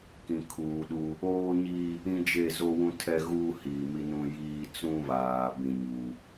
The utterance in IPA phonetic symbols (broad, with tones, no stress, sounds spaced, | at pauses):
k ĩ˨ kʰ uː˨ ɗ u˦ | oː˦ ɲ i˦ | ĩ˦ d͡ʒ e˦˨ z o˦ w ũ˦ tʰ ɛ˦ ɣ uː˦ h iː˨ m i˦ n ũ˦ j iː˦ t͡s ũ˦ β aː˨ b ĩ˦ ɲ u˦